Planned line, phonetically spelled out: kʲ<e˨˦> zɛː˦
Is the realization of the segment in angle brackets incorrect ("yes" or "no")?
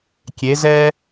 no